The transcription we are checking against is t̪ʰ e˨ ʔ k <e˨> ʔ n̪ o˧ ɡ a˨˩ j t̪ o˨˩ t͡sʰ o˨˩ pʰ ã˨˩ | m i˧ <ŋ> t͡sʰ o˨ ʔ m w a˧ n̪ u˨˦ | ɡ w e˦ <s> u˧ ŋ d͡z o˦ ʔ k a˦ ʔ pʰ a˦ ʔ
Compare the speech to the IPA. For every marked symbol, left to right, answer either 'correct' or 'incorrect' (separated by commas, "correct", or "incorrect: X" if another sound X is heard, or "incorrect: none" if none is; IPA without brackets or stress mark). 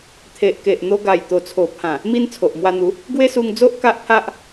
correct, incorrect: n, correct